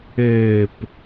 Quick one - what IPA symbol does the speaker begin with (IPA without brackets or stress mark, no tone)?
ɘː